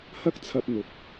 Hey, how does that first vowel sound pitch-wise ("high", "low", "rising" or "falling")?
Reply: high